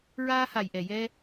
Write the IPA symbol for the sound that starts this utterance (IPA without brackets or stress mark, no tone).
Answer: ɹ